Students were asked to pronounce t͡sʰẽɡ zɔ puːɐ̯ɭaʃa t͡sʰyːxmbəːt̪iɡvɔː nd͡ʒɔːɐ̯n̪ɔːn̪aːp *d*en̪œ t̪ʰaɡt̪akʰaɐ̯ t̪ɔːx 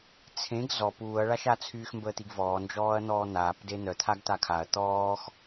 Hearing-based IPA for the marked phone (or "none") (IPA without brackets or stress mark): d